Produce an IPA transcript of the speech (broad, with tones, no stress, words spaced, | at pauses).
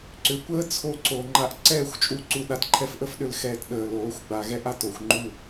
ǀʏ˨kʷəː˦t͡sʰo˧ ǀo˨ŋ͡ǃa˧ʔ ǀɛː˦˨xʷt͡ʃʼu˧ ǀu˧ɗa˧t ǃʰɛ˧fʔə˦fɗʏ˨lxɛː˨t ɗəː˨loː˨˦xʷɡ͡ba˨ ɣɛ˦ʔa˨t o˨xʷŋ͡ǃu˦˨